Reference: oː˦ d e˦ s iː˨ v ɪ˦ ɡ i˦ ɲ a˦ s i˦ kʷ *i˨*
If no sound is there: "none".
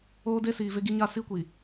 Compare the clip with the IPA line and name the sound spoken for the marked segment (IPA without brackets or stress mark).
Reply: i˨